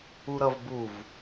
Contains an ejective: no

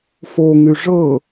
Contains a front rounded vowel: yes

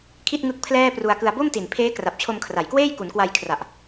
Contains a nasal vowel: no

